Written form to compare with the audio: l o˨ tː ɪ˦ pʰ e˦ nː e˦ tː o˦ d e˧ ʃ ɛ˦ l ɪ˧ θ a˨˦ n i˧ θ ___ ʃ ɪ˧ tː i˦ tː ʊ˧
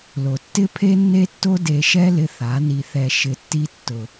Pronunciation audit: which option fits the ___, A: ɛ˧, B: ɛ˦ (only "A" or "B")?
A